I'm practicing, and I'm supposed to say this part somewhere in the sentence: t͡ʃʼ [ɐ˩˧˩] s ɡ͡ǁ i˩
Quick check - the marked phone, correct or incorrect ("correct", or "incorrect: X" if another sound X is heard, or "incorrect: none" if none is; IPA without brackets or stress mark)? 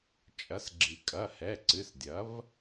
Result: incorrect: ɐ˩˥